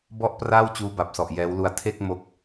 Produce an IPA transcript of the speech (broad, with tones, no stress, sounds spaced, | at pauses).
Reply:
b ɔ˥˩ ʔ p r aː˥˩ w t͡ɕ uː˦˥ b a˨˩ p̚ s ɔ˨˩ ʔ j ɛː˦˥ w l u˧ a̯ tʰ e˥˩ k̚ m o˦˥ k̚